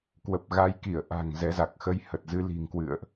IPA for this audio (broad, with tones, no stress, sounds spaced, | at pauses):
k w ə˨˩ p̚ ɣ a˨˦ j k i˧˩ ə̯ ʔ a̤˨˩ ŋ z ɛ˨˦ z a˨˩ k̚ x ə˨˦ j h ə˨˩ t̚ z ɨ˧ l i̤˨˩ ŋ k w ɨ̰˧˨ ə̯ ʔ